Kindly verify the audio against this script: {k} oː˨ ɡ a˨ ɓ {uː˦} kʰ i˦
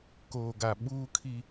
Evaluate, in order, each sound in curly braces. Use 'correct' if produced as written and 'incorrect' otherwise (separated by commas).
correct, correct